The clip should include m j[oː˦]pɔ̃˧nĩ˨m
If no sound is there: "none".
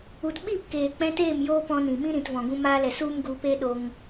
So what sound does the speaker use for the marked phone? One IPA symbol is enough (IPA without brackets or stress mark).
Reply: oː˦